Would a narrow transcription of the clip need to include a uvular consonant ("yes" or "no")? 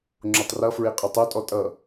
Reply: yes